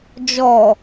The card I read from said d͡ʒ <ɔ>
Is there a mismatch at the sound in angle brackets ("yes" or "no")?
no